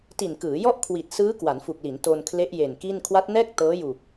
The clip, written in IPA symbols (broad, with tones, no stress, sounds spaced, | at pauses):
t i˨˩ n k ɯː˩˦ j ɔ˥˩ ʔ kʰ w i˨˩ t̚ s ɯː˦˥ k w a˩˦ n f u˨˩ k̚ l i˩˦ n t o˧ n kʰ l e˦˥ ʔ j e˨˩ n k i˥˩ n kʰ w a˦˥ t̚ n ɛː˥˩ k̚ t ɤː˦˥ j u˨˩ k̚